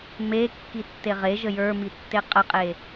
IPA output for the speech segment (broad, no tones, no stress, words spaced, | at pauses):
me kːitːeʁe ʒəjə˞mi tːeqʼəqʼe